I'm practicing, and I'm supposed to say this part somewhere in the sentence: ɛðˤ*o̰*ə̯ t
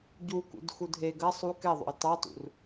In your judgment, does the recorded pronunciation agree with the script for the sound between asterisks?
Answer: yes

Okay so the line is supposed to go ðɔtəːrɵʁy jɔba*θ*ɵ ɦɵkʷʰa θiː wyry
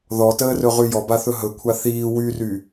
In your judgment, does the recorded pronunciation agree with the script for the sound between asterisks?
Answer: yes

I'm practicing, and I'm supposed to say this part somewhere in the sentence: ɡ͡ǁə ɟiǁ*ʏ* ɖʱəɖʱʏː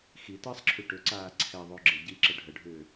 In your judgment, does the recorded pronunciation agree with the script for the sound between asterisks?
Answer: no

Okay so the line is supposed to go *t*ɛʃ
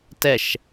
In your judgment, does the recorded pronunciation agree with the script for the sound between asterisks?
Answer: yes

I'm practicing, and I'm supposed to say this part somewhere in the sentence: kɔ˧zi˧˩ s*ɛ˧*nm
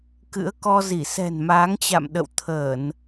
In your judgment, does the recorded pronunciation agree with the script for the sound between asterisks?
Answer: no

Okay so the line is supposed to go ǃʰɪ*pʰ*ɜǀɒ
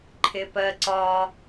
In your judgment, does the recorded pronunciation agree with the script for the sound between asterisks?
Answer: no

